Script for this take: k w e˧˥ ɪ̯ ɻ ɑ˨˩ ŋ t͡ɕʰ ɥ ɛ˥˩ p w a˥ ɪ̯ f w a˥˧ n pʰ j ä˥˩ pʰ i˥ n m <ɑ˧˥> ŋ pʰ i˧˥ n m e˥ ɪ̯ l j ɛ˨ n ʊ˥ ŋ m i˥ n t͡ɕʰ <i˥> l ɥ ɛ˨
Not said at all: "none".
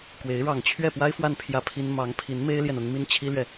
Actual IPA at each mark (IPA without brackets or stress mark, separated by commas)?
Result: ɑ˧˥, i˥